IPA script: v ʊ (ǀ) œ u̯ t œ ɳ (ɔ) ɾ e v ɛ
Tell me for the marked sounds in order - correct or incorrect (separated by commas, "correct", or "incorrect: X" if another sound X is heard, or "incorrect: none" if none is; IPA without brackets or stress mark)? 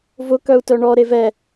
incorrect: k, correct